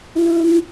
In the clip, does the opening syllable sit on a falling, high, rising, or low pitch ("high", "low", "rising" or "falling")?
high